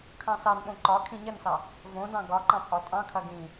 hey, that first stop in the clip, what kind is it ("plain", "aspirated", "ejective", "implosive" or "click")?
aspirated